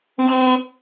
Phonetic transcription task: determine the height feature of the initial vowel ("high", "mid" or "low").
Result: high